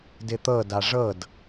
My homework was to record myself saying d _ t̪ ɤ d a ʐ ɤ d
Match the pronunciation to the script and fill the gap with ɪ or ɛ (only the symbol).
ɪ